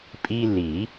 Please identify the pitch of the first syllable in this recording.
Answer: high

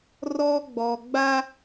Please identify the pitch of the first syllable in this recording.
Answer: high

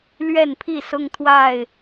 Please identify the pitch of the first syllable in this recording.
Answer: falling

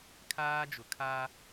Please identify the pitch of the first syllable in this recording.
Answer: high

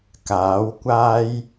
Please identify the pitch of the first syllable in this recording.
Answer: rising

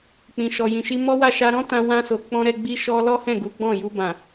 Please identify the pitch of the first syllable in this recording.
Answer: low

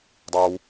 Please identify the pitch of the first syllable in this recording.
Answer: high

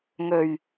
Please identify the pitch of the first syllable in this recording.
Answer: low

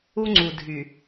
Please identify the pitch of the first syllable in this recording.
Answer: high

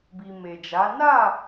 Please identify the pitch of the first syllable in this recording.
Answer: low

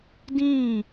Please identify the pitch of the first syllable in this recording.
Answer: falling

